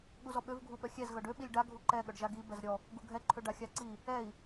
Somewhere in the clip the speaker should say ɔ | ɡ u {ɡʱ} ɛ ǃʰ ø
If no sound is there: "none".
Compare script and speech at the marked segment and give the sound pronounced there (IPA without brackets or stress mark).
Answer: ɡʱ